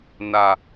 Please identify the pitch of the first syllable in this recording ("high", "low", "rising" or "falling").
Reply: low